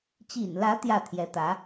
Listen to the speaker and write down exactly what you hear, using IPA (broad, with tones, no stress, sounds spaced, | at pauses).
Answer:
t͡ɕ ḭ˨˩ n l ä˧˥ t̪ j ä˥˩ t̪ʰ j ɛ˧˥ t̪ ä˧˥